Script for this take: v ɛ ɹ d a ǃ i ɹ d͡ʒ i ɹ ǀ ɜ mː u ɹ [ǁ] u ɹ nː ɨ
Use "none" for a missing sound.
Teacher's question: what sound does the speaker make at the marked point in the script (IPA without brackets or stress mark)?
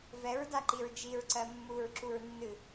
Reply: ǁ